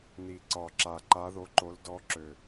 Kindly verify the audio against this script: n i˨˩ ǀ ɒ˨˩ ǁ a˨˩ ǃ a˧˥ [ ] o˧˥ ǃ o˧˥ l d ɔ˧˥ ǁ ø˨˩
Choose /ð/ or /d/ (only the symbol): ð